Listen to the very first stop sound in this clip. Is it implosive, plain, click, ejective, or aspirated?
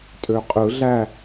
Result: ejective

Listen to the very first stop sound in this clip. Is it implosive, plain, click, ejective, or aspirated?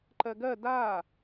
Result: click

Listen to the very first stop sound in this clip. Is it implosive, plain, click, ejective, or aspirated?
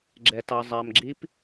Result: click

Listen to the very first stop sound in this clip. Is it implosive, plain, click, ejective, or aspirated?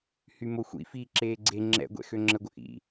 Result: click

